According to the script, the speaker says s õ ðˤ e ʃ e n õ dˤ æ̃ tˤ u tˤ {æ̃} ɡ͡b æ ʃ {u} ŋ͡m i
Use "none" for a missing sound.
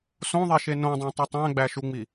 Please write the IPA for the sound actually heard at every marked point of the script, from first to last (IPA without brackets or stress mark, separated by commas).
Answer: æ̃, u